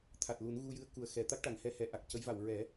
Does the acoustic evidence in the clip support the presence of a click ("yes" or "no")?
no